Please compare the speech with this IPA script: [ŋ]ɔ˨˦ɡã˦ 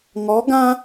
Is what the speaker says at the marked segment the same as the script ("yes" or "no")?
yes